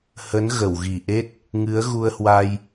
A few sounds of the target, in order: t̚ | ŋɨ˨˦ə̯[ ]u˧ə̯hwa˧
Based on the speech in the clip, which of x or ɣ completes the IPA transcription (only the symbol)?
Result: ɣ